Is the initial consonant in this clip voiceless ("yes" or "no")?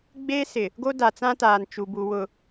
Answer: no